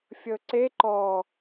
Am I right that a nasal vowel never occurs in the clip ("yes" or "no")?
yes